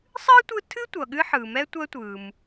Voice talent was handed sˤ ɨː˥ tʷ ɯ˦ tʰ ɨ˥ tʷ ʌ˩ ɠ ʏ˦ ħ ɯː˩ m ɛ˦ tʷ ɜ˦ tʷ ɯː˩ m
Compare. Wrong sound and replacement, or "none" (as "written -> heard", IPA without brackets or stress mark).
ʏ˦ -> ɨ˦